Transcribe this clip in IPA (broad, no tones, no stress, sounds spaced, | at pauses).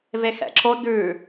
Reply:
v e x ɛ̰ ǁ o d ʉ